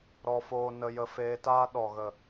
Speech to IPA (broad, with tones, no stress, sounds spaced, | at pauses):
ɾ ɔ˧ f oː˧ n ə˧ j ə˧ f eː˧ t aː˦ ɗ ɔ˨ ɣ ə˨